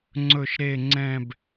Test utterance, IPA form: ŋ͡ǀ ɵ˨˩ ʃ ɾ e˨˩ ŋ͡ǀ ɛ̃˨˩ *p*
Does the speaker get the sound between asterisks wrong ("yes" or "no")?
yes